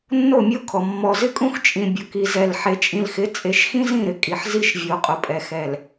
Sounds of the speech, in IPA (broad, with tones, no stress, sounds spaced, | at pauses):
nː o˦˨ mʲ o˦ kʰ ɔ˨ mː ɔ˨ z ɪ˦ kʼ ũ˦ x t͡ʃʼ ĩ˨ bʲ ʊ˨ k i˨ z ɛ˨ l ħ e˨ t͡ʃʼ ĩ˨ l x ɪ˨˦ t͡sʼ e˨˦ ʃ x ĩ˦ z ĩ˦˨ ɾ ɪ˨ kʼ i˨ ħ z i˦ ʃ vʲ o˨ qʼ ʊ˨ pʼ ɛ˨ x ɛ˨ l